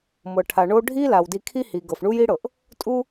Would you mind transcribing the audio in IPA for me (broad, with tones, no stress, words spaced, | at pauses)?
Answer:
mɤ˩ʈʰa˩ ɳo˦ ɖʱi˥ la˩wdi˨kʰi˦ hi˩ɡɤ˩f ɳu˥ji˥ɽɤ˩ʔ | tʼu˦